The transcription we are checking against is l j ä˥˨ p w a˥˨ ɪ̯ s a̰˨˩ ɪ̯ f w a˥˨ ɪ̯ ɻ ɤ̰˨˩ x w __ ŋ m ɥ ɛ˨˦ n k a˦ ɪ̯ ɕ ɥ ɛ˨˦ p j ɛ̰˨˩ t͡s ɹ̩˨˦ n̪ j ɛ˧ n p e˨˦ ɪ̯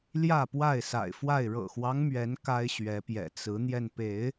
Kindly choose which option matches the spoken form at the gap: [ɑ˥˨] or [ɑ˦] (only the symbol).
ɑ˦